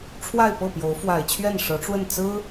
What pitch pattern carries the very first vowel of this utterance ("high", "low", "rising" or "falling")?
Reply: falling